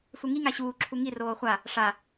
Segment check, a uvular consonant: present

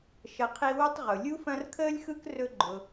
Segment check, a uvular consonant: present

